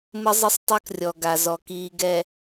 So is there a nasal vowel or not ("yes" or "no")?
no